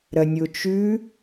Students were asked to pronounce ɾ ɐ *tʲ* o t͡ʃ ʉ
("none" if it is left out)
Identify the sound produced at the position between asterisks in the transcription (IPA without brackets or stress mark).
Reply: nʲ